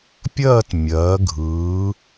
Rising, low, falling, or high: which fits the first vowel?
falling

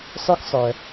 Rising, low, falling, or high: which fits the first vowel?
high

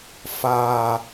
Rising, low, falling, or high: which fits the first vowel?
low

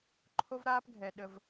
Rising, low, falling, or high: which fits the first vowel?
high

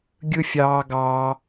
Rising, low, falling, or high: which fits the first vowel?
high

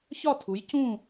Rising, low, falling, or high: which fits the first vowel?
falling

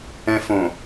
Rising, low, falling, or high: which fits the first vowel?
high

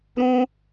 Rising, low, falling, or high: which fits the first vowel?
high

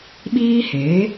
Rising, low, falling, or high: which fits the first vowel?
high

